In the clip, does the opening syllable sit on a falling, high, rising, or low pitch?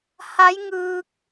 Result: rising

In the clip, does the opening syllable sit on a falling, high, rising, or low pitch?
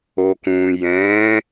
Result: low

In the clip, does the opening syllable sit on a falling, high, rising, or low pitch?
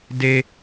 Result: high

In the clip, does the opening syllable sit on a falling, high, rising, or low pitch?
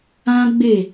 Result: high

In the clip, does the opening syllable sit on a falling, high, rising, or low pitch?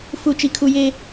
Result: low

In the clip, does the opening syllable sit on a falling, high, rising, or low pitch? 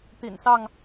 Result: low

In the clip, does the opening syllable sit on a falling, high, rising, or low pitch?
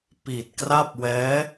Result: low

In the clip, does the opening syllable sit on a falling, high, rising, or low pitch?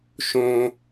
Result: low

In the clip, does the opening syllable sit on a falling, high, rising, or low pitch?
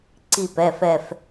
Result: falling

